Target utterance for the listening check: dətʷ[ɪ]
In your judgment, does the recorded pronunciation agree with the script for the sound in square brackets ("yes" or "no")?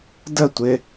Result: yes